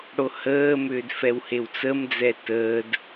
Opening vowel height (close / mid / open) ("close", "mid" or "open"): mid